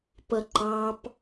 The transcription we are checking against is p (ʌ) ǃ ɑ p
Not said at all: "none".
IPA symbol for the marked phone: ʌ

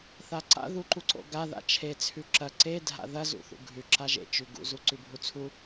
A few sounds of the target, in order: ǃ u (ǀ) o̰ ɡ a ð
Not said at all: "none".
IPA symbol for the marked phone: ǀ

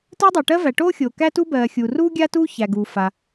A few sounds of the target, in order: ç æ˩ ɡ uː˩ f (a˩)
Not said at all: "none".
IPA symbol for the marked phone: a˩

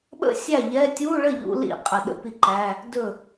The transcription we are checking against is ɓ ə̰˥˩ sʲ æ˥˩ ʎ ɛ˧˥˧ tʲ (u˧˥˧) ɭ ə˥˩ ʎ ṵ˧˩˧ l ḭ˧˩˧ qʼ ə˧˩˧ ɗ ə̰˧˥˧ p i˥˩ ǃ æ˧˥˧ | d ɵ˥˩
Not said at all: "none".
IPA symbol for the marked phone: u˧˥˧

